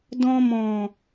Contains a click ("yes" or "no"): no